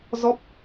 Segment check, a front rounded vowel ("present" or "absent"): absent